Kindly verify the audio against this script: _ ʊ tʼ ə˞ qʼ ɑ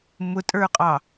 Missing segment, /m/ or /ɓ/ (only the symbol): m